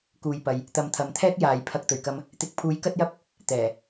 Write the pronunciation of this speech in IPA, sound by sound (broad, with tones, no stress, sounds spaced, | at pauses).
k uː˨˧ j p ɐ˨ j | t̪ ɐ˨˧ m t̪ʰ ɐ˨ m t̪ʰ ɛː˥ k̚ j aː˨˧ j pʰ ɐ˧ k̚ t̪ ɵ˨˩ ɥ k ɐ˧ m | t̪ ɪ˨ k̚ pʰ uː˨˥ j k ɐ˥ t̚ j ɐ˥ p̚ | t̪ ɛː˨˩